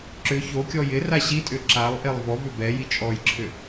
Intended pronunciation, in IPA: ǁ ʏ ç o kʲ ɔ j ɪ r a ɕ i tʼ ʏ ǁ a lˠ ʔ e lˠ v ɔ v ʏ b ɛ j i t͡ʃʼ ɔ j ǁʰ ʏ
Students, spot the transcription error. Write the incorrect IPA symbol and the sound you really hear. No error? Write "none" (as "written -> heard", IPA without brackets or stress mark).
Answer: none